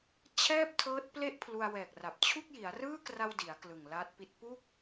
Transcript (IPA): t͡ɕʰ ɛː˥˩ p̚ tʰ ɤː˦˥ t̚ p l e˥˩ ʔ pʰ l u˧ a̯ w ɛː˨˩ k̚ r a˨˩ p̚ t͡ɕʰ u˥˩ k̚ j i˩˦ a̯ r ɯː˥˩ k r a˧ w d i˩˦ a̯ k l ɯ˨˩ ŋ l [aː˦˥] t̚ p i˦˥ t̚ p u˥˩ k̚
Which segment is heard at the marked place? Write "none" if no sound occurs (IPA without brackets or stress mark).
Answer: aː˦˥